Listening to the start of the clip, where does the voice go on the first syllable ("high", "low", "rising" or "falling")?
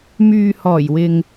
low